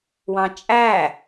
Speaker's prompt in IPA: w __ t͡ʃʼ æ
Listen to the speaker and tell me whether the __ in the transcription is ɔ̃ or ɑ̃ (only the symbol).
ɑ̃